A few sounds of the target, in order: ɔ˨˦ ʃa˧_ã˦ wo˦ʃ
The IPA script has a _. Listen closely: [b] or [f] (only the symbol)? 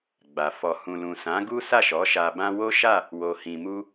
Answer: b